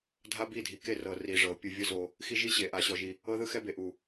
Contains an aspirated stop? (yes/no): no